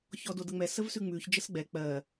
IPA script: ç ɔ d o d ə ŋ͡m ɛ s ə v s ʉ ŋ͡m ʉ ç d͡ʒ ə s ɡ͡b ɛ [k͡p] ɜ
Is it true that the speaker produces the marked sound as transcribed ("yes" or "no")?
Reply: yes